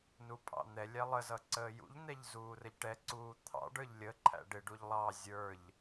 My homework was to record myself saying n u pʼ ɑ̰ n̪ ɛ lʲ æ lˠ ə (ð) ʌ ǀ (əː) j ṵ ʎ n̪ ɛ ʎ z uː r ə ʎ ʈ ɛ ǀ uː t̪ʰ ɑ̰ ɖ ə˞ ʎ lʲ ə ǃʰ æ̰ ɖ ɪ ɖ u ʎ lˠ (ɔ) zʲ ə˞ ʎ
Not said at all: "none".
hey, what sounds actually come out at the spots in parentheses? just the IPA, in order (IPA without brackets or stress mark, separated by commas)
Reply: z, əː, ɑ